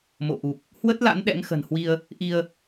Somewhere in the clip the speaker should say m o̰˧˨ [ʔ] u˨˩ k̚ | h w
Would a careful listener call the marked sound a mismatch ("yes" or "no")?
no